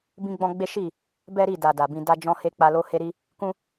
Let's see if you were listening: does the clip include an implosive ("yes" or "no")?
no